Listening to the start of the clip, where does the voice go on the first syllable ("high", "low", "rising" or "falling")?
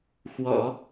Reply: low